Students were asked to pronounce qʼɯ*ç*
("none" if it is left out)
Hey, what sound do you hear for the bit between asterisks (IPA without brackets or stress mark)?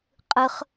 χ